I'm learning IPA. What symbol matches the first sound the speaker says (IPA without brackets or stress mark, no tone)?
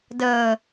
d